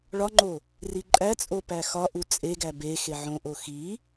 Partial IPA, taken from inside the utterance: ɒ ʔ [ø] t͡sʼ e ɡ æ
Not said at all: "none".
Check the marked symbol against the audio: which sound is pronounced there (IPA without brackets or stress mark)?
u